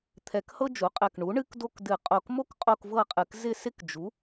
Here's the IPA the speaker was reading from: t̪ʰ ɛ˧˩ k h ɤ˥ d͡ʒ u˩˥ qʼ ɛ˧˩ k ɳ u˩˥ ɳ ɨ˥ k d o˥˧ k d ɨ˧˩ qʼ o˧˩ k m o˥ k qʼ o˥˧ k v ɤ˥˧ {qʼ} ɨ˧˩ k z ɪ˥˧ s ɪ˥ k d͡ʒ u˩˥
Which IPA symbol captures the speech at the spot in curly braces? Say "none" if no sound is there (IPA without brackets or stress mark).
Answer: qʼ